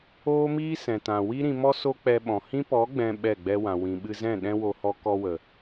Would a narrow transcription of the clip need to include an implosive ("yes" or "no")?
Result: yes